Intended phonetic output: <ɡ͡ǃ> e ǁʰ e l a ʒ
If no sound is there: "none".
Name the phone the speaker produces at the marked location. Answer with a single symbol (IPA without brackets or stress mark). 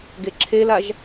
ɡ